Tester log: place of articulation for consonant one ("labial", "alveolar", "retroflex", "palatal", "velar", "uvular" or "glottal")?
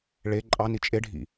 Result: retroflex